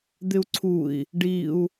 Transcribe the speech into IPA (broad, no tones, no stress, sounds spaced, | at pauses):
d̪ ɪ u̯ ǀʰ u i̯ | ɖ i u̯